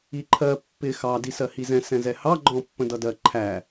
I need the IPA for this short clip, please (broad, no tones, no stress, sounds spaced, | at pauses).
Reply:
i ǃʰ ɜ pː ɪ x ɑ d i s ɜ h i z ɛ̃ s ɛ̃ z ɛ h ɑ ɡ͡ǃ ɔ̃ pː ə̃ d ʌ d ɜ ǃʰ æ